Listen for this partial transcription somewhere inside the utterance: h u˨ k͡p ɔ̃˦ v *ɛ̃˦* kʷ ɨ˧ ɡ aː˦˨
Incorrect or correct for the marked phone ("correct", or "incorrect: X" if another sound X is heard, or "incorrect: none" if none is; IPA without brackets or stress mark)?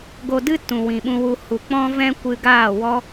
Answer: correct